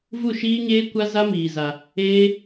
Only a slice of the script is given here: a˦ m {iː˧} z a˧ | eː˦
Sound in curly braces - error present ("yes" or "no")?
no